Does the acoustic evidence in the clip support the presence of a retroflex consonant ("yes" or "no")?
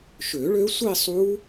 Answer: yes